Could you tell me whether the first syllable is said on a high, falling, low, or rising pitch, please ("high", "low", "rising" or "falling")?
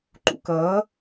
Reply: low